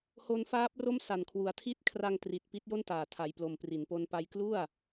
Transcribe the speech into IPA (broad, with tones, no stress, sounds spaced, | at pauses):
h o˧ n f aː˦˥ p̚ r o˥˩ m s a˨˩ n kʰ w u˨˩ a̯ tʰ i˦˥ t̚ kʰ r a˧ ŋ t r i˨˩ t̚ p i˦˥ t̚ j o˥˩ n t aː˨˩ tʰ a˧ j p l o˨˩ m p r i˩˦ n p o˧ n p a˦˥ j k l u˥˩ a̯